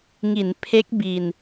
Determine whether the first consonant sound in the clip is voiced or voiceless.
voiced